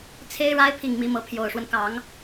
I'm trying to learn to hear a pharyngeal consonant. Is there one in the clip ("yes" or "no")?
no